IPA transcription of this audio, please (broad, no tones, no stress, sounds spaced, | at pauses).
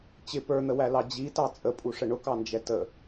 t͡ɕ ɪ p ə˞ n̪ ə w æ l ɑ d͡ʑ i t ɑ t͡sʼ ə pʼ u ʂ ə ɳ ʊ k ɑ n d͡ʒ ɛ t ə